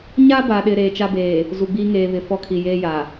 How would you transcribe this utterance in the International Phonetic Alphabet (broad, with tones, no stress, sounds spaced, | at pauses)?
ɲ a˦ b a˨ ɗ ɪ˨ ɾ eː˨ t͡ʃ a˦ b eː˨ | z u˨ ɡ͡b iː˦ ŋ eː˨ β ɪ˨ f ɔ˦ kʰ i˨ j eː˦ j a˨